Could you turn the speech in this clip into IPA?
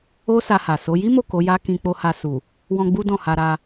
o˦ s a˧ h a˨ s o˨˦ j i˦ m o˦˨ k o˨˦ j a˦ k ĩ˧ k͡p o˧ h a˧ s u˨ | w ɔ̃˧ ɡ͡b u˦ d ɔ̃˦˨ h a˧ ɾ a˧

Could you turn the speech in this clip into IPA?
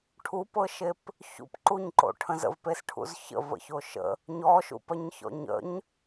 ʈʰ u p ɤ ʃ e p | ç ṵ p ǃ u ɲ ǃ o̰ ʈʰ ə̃ z ə̰ v p e s ʈʰ ṵ z ç ə̰ v ə̰ ç o ʃ ə̰ | ɲ ɔ ʃ ṵ p ɜ ɲ ç ɔ̰ ɲ ə̰ ɲ

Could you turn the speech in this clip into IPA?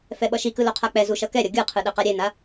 f ɛ ɓ ʌ ʃ i k ɯ l o qʰ a k͡p ɛ z u ʃ ʌ k ɛ ɾʲ ʌ ɡʲ ɯ qʰ ɯ ɗ ɛ q a ɾʲ e n a

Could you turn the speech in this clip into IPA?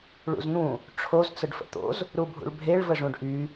ɭ ṵ z n̪ ũ | ʈ͡ʂʰ o z t͡s ə ɖ f ə̰ t̪ o̰ z | ɾ u bʱ ṵ ɭ bʱ e ɭ v ə ʐ ũ ɖ ʔ y

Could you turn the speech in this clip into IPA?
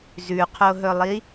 z ʉ qʰ o ɦ ɵ lˠ i

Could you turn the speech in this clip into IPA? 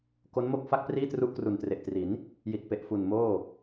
k o˦˥ n m o˥˩ k̚ f a˥˩ k̚ p r iː˥˩ t r u˦˥ ʔ k r u˨˩ n t r e˨˩ ʔ t r i˩˦ n | j i˨˩ t̚ p e˨˩ ʔ f u˨˩ n m oː˥˩

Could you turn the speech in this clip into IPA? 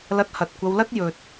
l ɐ˧ t̚ h ɐ˨ t̚ kʷ ɐ˧ w l ɐ˥ t̚ j ɵ˧ t̚

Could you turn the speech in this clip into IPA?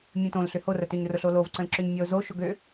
mʲ ə̃ t õ l ɬ ʏ h o r ə t ø ɲ r ʊ ɬ o l o v ǀ ə̃ l ǁ ʏ ɲ mʲ ɔ ʊ̯ z o ʃ ʊ ɡ ø

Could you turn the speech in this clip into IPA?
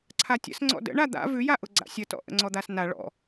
ǀʰ a tʲ ə̰ s ŋ͡ǀ ɔ̰ d ə̰ ɳ a d̪ a̰ v ʉ j a ʔ ʊ ɡ͡ǀ a̰ sʲ ə t ɔ̰ ʔ ə̰ ŋ͡ǀ ɔ d̪ a s n a ɭ ɔ̰

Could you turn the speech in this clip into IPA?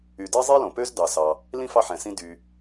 y˨ d ɛ˥ zˤ i˥ l õ˩ p ø˥ z d ɑ˨ s ɑ˨ | l ĩ˥ f ɑ˦ ħ ɛ̃˩ s ĩ˦ d y˨

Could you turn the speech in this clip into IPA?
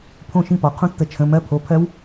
pʰ õ˥˨ ʃ ĩ˥˨ p ɔ˩ qʰ ũ˦˥ tː ə˨˩˦ t͡ʃʰ ə̃˩˧˩ m ɜ˦˥ pʰ o˩˧˩ pʰ ɜ˦˥ w

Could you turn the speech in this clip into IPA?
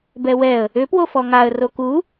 b ɛ w ɛ ə̯ | ʏ p w o f ɔ ŋ a ə̯ r o k u

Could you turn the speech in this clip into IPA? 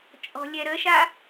t͡ʃʼ ɔ̤ lʲ ɛ ɾ ə ʃ a

